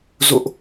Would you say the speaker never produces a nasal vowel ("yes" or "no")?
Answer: yes